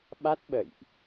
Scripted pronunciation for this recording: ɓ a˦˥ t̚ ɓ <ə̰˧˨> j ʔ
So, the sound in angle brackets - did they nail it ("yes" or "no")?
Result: yes